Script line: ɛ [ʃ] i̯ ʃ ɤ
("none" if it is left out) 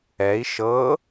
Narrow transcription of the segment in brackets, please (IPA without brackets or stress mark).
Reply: none